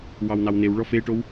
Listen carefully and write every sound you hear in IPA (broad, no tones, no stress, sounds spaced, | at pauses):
w ɑ w n ɑ w n e w ɭ ɔ f e ʈ o w